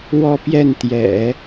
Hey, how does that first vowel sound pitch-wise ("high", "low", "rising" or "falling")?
falling